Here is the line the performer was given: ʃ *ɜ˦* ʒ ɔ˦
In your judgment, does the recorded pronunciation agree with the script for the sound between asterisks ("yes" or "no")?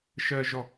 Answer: yes